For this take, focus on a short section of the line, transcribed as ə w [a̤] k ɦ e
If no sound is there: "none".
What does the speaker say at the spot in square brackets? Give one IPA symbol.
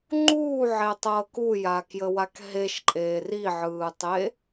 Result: a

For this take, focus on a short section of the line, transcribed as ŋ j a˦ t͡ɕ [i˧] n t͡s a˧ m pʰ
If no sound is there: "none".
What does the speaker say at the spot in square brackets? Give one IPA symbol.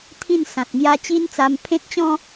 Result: i˦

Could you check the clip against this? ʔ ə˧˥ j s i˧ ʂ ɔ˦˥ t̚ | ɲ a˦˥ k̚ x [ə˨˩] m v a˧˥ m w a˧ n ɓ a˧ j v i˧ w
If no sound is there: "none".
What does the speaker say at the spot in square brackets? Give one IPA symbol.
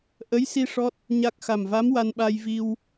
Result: a˨˩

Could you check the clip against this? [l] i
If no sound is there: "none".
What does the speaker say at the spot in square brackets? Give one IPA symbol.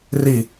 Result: r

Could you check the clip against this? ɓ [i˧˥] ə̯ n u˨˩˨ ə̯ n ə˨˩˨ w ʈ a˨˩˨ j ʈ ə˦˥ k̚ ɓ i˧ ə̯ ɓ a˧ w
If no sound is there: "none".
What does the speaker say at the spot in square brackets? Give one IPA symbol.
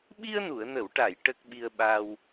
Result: i˧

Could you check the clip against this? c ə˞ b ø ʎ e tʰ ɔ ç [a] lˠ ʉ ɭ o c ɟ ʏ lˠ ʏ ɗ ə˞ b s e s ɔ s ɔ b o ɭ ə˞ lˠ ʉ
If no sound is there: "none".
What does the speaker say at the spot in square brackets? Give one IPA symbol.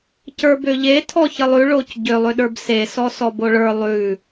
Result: ə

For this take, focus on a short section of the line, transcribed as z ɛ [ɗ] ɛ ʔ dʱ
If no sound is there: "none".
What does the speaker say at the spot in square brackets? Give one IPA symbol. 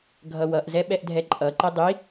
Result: ɓ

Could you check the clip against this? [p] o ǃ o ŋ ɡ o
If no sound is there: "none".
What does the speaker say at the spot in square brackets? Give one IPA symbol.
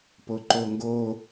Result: p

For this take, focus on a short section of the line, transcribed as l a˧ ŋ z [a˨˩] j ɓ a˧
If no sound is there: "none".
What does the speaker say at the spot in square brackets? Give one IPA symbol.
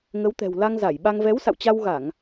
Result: a˧˩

